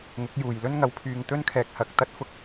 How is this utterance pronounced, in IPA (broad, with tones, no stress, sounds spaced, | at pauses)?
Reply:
ŋ ʊ˨˥ k̚ j uː˨ j l ɵ˥ n ŋ ɐ˧ w pʰ yː˧ ŋ t̪ ɵ˥ n kʰ ɛː˧ k̚ h ɐ˧ k̚ t̪ ɐ˥ t̚ f ʊ˥ k̚